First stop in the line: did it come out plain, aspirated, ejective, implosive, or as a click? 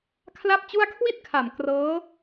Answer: aspirated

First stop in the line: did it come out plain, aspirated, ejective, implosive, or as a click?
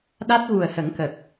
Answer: implosive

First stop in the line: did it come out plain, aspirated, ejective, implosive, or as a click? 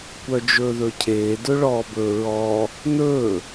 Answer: plain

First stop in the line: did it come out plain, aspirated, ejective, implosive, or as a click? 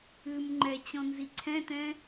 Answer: click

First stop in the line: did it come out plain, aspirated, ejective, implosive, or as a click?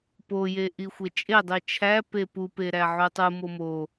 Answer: plain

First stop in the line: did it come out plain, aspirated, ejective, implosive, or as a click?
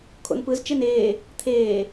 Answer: aspirated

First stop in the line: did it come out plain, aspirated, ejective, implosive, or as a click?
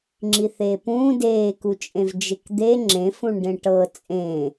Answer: click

